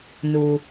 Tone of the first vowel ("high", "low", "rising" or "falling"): low